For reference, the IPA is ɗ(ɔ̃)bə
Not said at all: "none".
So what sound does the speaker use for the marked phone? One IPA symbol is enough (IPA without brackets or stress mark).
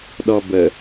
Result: ɔ